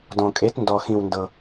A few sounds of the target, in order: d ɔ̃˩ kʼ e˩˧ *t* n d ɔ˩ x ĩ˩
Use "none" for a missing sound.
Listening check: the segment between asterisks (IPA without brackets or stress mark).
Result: t